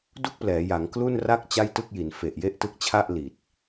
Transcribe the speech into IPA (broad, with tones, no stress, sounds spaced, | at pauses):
d u˥˩ k̚ p l ɛː˩˦ j a˩˦ ŋ k l u˥˩ n r a˥˩ k̚ t͡ɕ a˥˩ j t ɯ˥˩ k̚ j i˩˦ n f e˨˩ ʔ j e˥˩ ʔ t ɯ˦˥ k̚ t͡ɕʰ a˥˩ ʔ l i˨˩ t̚